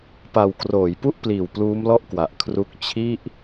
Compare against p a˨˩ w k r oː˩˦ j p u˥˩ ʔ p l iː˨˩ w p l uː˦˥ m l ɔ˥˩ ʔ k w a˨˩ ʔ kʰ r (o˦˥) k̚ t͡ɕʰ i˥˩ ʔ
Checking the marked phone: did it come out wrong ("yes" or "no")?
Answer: yes